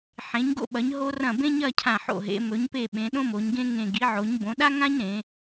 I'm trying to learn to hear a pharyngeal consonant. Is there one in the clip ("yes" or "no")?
yes